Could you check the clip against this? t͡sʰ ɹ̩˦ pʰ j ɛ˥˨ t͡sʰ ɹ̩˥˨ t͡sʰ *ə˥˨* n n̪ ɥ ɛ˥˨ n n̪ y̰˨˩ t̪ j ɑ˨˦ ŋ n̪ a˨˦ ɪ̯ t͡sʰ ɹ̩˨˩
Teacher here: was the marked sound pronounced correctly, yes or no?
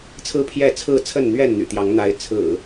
yes